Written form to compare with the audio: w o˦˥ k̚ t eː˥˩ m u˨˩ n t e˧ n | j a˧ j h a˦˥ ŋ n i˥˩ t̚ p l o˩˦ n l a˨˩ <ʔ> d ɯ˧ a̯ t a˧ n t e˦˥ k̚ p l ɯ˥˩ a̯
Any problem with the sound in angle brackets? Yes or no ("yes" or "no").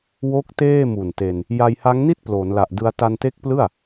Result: no